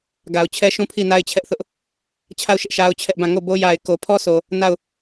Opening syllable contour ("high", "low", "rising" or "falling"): low